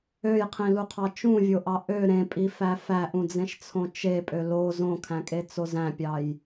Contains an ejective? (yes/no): yes